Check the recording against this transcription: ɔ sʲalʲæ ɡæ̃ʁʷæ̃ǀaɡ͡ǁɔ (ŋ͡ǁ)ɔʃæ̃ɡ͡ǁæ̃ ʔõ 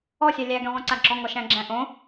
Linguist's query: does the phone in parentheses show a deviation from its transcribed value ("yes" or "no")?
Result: yes